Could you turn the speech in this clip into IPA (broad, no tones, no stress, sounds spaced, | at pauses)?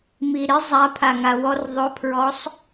m i ɾ ɪ zˤ a pʰ a ŋ a w ɔ r ðˤ ʊ pʰ ɹ ɔ sˤ